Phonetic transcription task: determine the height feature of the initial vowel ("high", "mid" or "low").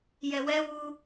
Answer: mid